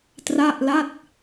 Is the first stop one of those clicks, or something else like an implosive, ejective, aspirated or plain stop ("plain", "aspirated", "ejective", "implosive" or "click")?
plain